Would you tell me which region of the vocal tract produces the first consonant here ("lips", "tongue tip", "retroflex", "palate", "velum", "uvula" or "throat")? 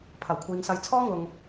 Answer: lips